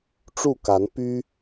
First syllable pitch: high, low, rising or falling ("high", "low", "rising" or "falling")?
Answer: falling